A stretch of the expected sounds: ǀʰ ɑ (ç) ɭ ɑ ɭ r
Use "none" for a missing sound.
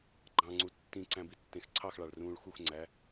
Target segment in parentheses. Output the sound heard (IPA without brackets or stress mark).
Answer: x